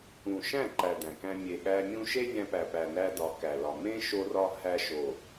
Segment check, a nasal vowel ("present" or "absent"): present